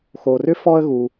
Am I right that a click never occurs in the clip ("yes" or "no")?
yes